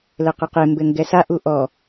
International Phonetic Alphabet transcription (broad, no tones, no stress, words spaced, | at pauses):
lɘqɘqe mbɘŋɡɛsa ʔuʔɔ